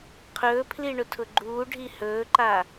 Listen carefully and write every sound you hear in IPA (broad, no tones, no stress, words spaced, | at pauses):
qʰɵːpʰli ɳʊtʰʊɡ͡ǃuː ɖʱihɵːǃa